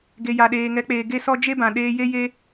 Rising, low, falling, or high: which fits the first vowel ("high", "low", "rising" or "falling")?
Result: low